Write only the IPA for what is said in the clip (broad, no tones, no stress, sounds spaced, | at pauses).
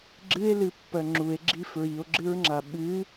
ɡ͡ǁ ɨ e̯ l ɨ pː ɜ ŋ͡ǁ u e̯ ɡ͡ǁ i f ɹ i o̯ ɡ͡ǁ ɨ ɹ ŋ͡ǁ a ɓ ɨ